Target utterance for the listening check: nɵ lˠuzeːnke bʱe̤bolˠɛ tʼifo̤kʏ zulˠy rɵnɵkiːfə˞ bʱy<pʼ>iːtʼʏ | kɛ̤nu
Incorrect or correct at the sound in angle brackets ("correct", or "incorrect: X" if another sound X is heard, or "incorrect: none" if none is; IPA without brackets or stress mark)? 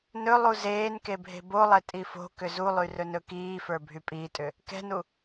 correct